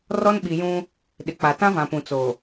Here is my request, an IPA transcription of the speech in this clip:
r ɔ˦ n ɓ i˨ j ũ˦ | ɗ ɪ˨ k͡p a˨ t ã˦ v ã˨ p ũ˨ t͡s o˨

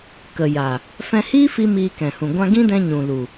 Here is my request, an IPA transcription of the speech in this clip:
k ə˨ j a˨ | f ɛ̃˧ h iː˦ f i˧ m iː˧ k ɛ̃˨ h ũ˨ ɡʷ ã˧ ɡ ĩ˦ d ɛ̃˧ ɲ ũ˨ l u˨

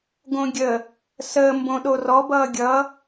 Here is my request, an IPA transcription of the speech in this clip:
ɡ õ ɡʲ ə | s əː m b õ ɗ o r ɔ b ʌː ɡʲ ʌ

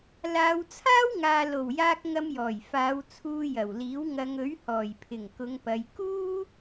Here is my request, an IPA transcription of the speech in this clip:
l aː˨˧ w t͡sʰ aː˥ w ŋ aː˨ l o˨˩ w j aː˧ k̚ ŋ ɐ˧ m j ɔː˨˩ j f aː˨˧ w t͡sʰ uː˧ j ɐ˨˩ w l iː˨˥ w ŋ ɐ˨˧ ŋ ɵ˨˥ ɥ h ɔː˨˩ j pʰ ɪ˨˩ ŋ k ʊ˨˧ ŋ p ɐ˨˧ j k uː˥

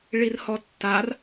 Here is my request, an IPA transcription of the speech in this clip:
ɭ i r h ɔ tː a r

